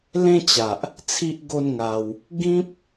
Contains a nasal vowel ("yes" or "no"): yes